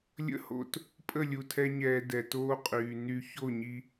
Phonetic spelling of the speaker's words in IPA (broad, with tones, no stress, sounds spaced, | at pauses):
lʲ ə̰˦ h o̰˧ t | pʼ ə˦˨ lʲ u˨ tʰ ɛ˧ ɲ ɛː˨ d ɛ˨ t oː˧ qʼ yː˨ n y˧ ç o˦˨ ɲ i˧